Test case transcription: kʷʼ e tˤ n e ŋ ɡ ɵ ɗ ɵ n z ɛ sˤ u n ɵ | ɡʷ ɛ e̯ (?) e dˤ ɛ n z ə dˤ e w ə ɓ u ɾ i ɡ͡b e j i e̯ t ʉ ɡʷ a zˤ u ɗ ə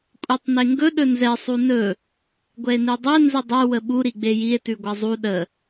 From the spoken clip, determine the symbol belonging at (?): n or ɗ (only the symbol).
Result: n